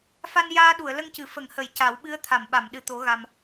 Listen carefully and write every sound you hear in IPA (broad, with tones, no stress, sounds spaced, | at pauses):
f a˧ n j aː˧ ɗ u˨˩˨ ə̯ l ə˧ ŋ c ɨ˨˩˨ f ə˨˩˨ ŋ h ə˨˩˨ j c a˨˩˦ w ɓ ɨ˧˥ ə̯ t̪ʰ a˨˩˨ m ɓ a˨˩˨ m ɗ ɨ˨˩ t̪ o˨˩˦ ɣ a˨˩ m